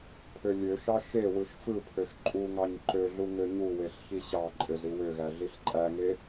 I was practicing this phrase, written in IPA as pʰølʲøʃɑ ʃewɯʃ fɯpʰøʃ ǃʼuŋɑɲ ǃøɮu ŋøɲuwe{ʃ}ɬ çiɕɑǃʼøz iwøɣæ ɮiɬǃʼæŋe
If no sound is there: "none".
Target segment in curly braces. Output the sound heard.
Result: none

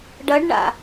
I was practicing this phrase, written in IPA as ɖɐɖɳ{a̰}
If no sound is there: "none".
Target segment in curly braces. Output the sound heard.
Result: a̰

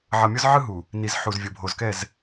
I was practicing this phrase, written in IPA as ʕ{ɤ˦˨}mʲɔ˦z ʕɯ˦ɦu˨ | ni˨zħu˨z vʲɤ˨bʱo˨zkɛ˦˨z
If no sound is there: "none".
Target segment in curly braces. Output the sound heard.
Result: ɤ˨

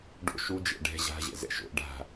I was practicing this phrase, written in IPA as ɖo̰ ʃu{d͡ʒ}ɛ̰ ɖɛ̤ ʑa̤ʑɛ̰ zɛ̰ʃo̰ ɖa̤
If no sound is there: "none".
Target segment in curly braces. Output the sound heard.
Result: d͡ʒ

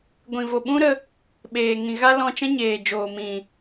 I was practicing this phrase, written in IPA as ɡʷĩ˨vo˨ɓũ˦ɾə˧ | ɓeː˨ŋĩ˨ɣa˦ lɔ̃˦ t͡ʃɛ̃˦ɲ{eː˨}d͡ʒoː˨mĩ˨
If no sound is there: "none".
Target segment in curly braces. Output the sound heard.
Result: eː˨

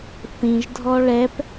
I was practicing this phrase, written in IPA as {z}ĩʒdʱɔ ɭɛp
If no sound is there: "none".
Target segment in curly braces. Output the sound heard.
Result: θ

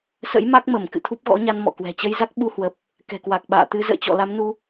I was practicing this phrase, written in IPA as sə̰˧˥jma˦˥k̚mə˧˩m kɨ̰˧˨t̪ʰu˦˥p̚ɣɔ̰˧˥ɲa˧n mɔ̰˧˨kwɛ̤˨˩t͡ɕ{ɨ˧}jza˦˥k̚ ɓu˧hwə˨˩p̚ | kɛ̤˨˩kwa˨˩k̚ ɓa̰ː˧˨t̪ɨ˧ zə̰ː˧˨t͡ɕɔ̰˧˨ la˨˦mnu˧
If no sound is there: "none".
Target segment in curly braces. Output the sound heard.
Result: ə˧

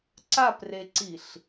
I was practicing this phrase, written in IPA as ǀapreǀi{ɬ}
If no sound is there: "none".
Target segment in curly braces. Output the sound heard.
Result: ɬ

